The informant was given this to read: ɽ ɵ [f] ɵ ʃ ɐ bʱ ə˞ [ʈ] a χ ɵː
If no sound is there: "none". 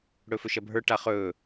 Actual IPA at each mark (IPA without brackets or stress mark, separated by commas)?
f, ʈ